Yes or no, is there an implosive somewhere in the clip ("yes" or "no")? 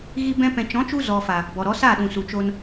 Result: yes